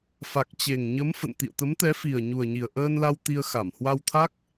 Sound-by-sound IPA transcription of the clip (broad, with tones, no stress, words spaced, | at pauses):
fa˨˩k̚t͡ɕe˨˩ŋɲə˨˦m fə̰˧˨n t̪ḭ˧˨ə̯t̪ə˨˦mt̪ɛ˨˦fi˨˩ə̯ ɲu˨˩ə̯ɲi˨˩ə̯ʔəː˧nla˧w t̪i˧ə̯xa˧˩m hwa˧wt̪ʰa˦˥k̚